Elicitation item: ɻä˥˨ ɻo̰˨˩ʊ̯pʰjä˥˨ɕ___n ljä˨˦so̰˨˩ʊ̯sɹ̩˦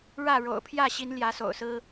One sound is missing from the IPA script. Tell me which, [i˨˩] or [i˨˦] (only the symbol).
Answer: i˨˦